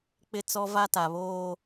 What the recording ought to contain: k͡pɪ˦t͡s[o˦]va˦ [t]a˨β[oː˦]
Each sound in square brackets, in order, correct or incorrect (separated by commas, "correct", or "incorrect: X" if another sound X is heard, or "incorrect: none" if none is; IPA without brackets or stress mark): incorrect: ɔ˦, correct, correct